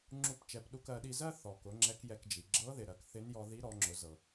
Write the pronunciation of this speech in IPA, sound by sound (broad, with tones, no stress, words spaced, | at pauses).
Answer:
ŋ͡ǁu˧pt͡ʃɛ˩˧p ɗu˧kɜ˩˧ɗi˧zɜ˥ θɔ˩kʊ˩˧ ŋ͡ǁɛ˧˥kjɛ˧kd͡ʒi˩ ɡ͡ǁɤ˧˥ðɪ˩ ɾɜ˩kθɪ˧˥n jɔ˧ði˧˥ɾɔ˩˧ ŋ͡ǁʊ˩˧zɤ˩